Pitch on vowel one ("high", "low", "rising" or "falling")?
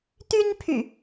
high